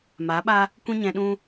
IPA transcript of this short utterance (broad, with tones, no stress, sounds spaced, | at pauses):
m aː˨˦ ɓ a˧ | kʷ ĩ˦ ɲ ɛ̃˧ ɗ ũ˦